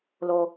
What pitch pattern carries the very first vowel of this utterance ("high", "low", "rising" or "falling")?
high